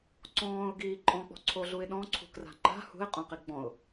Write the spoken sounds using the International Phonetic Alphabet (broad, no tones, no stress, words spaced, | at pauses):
ǀɔ̃ːʊ̯ɡiː ǃʼɔ̃k͡pɔ̤ǀʰoɮuɪ̯ ɗɔ̃ǀʰṳkra̤ ŋ͡ǃa̤ hṳɪ̯qʼõqi ɡ͡bɔ̃ʊ̯